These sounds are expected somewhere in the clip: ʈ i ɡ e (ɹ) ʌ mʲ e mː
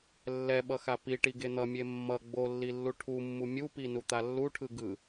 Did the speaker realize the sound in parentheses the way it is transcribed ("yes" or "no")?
no